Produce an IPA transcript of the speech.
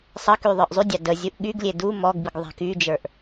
sˤ ə k y ðˤ ə˞ ʔ zˤ y dʲ ɑ d ə zʲ u ʔ ɠ y ɡ lʲ e d u m ɔ ɡ b i ɡ ðˤ a̤ k y d͡ʒ ə˞ ʔ

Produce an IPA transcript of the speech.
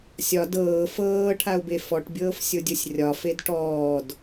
sʲ ɒ d ɤː f ɤː ʈʰ a ʊ̯ b e f ɔ ʈ bʲ ɤː f sʲ o dʲ o sʲ rʲ ɒ f e d ʈ ɔː d

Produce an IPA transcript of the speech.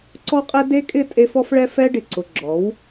ǀ ɔ˦ qʼ ɛ˦ d e˦ kʼ ɪ˦˨ tʼ e˦ f ɔ˦ f ɭ ɛ˦ f ɛ˦ ɖ ɪ˨ ǀ ʊ˨ ɡ͡ǁ ɔ˨˦ w

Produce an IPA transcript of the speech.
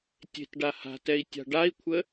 tʲ e̤ t ɖ a h a̤ t ɛ i̯ tʲ a̤ ɖ a i̯ kʷʰ ə

